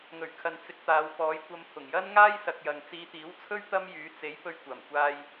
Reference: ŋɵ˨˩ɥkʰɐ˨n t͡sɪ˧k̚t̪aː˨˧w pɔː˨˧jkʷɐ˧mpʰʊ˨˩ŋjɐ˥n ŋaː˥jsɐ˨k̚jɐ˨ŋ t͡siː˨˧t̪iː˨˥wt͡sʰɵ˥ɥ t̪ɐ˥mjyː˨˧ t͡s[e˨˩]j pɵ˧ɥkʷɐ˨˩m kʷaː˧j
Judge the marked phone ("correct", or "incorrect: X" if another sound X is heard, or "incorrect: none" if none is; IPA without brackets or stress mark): incorrect: e˨˥